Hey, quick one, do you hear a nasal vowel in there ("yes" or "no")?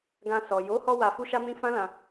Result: yes